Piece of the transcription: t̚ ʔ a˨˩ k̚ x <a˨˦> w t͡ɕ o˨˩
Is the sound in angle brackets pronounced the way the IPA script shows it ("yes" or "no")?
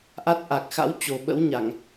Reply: no